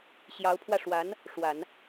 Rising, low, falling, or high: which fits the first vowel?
rising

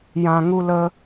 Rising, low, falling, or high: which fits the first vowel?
low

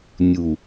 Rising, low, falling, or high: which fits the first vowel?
low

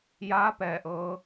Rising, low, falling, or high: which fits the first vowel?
rising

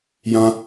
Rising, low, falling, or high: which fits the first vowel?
high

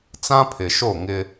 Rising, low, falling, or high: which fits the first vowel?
high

